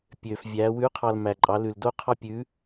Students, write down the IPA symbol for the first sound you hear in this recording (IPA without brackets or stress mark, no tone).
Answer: pʲ